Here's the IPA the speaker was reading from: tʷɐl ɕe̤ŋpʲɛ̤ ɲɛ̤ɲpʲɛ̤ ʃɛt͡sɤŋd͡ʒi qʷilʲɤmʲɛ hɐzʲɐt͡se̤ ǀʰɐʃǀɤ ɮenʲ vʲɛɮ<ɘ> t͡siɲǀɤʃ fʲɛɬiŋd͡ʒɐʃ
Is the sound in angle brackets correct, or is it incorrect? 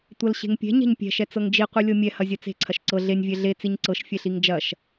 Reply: incorrect